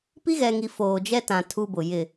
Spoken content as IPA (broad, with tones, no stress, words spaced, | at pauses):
pi˦ɣɛ˨ŋi˨ foː˨d͡ʒɛ˦tã˨ tʰu˦bʊ˨jɪ˦˨